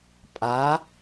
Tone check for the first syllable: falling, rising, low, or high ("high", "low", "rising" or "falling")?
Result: rising